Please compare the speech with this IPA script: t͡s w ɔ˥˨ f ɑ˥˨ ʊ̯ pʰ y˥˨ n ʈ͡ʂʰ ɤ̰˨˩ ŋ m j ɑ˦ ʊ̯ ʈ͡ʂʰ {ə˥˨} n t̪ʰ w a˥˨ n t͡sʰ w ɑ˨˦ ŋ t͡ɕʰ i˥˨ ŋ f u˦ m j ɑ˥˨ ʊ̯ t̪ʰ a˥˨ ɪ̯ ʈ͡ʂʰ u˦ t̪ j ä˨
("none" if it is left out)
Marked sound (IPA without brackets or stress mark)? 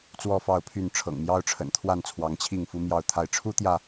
ə̰˨˩